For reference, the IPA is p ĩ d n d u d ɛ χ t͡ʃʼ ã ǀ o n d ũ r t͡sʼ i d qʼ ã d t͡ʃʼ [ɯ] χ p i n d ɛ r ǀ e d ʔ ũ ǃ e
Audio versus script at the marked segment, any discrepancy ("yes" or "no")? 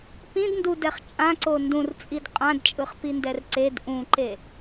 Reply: no